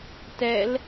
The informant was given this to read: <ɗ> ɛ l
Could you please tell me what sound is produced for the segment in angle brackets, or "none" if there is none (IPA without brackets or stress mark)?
t